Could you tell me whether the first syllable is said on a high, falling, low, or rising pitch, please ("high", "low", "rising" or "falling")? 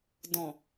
low